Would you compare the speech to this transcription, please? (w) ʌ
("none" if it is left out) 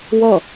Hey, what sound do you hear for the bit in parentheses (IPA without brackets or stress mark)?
w